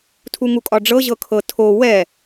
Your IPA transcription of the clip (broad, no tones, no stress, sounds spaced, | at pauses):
tʰ u ŋ u kʼ ɒ ɖ͡ʐ ɤ ʑ ɤ kʰ ɤ tʰ o w ɛ